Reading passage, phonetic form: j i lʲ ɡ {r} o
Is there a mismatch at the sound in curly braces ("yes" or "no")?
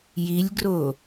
no